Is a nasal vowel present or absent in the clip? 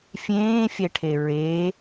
present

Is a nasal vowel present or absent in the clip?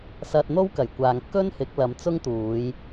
absent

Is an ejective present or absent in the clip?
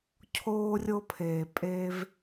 present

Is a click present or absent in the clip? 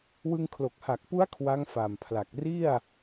absent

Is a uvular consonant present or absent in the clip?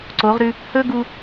present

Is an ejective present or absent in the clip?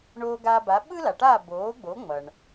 absent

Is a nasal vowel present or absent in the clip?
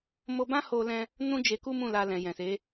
present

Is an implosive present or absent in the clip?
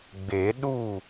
present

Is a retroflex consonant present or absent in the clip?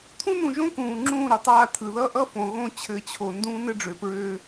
present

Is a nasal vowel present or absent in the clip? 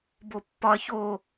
absent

